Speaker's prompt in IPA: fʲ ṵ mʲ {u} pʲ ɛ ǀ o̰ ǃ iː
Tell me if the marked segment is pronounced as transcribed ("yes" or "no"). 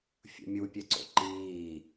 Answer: yes